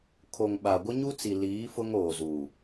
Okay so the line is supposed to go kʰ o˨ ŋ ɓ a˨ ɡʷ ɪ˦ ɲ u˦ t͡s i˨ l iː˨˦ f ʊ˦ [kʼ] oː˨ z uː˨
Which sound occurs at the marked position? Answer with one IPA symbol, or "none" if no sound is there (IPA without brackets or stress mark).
ŋ